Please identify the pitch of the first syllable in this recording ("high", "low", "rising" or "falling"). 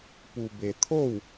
low